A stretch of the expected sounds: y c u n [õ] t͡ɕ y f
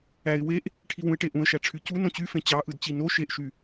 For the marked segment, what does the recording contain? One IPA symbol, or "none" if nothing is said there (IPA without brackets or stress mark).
õ